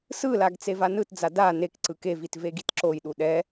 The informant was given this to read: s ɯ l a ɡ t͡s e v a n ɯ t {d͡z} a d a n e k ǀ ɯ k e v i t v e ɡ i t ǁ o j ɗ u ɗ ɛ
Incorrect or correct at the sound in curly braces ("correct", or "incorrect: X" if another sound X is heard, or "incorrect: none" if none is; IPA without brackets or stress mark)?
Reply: correct